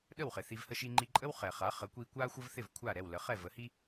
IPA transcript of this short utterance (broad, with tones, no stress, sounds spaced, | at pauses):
ɗ ə˥˩ w χ ɪ˩ θ i˧ v h ə˥ ʃ i˧ ŋ͡ǃ i˧ ǃʼ ə˥ w χ ɛ˩ χ a˩˥ χ ə˩˥ kʷ i˧ kʷ a˥ xʷ ə˥ v θ ɪ˥˩ v kʷʰ a˥˩ ɾ ɛ˥˩ w l ə˩˥ χ ɛ˥˩ v ə˩˥ h i˥